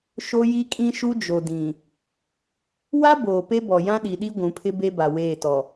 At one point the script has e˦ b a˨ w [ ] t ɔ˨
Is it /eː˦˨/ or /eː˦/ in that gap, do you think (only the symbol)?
eː˦˨